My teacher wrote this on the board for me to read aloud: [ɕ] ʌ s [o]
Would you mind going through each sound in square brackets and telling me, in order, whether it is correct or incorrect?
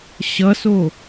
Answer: correct, correct

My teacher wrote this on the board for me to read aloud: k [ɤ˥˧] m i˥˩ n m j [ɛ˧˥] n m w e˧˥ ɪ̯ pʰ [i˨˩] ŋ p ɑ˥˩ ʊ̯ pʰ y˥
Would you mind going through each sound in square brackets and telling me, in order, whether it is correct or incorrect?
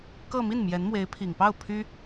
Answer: correct, correct, correct

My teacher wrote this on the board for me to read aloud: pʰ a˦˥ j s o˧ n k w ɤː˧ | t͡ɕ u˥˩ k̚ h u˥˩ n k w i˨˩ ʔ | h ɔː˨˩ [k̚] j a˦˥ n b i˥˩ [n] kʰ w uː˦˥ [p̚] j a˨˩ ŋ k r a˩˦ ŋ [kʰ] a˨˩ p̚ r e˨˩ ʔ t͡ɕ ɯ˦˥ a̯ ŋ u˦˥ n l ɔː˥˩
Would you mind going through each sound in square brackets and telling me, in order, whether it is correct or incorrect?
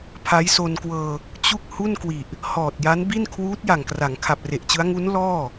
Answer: incorrect, correct, incorrect, correct

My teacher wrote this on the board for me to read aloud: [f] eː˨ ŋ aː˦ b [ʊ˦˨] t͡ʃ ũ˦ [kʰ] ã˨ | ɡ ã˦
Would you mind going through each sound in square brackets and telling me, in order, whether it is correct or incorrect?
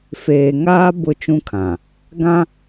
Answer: correct, correct, correct

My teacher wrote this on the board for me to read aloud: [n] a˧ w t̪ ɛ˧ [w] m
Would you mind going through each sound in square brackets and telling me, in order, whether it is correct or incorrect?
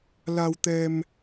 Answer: incorrect, incorrect

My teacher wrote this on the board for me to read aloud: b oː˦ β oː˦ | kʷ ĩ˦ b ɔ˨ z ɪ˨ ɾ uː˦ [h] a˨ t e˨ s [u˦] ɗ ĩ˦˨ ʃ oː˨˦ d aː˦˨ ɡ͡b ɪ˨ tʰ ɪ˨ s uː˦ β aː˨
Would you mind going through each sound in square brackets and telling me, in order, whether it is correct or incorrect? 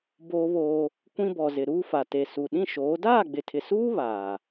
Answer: incorrect, incorrect

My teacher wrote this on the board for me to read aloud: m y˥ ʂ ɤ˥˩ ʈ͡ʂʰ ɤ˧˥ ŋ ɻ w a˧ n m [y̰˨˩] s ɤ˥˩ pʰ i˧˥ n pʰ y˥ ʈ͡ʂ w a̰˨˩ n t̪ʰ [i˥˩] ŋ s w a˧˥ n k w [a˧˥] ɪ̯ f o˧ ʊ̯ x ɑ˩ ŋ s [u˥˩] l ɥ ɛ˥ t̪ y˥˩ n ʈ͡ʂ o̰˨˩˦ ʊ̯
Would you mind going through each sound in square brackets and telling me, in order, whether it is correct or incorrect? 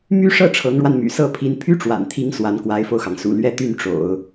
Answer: correct, incorrect, correct, incorrect

